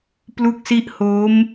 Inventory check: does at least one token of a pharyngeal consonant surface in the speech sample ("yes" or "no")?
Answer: no